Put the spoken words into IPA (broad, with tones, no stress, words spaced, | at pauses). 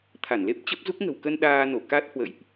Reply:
t̪ʰa˧˩nle˦˥p̚t͡ɕə˦˥p̚zu˦˥k̚ ŋə̤˨˩wkə˧n ɗaː˧ no˧˩ka˦˥t̚hwə̰˧˨jʔ